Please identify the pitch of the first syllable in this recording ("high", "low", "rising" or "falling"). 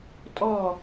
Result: falling